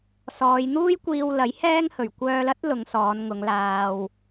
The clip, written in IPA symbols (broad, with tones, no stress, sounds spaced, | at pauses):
s ɔː˨˧ j n̪ uː˥ j kʷ iː˧ w l ɐ˨˥ j h ɛː˥ ŋ h ɵ˨˩ ɥ kʷ œː˧ l ɐ˥ t̚ l ʊ˨˧ ŋ s ɔː˨˧ n ŋ ʊ˨˧ ŋ l aː˨ w